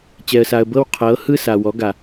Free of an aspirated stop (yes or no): no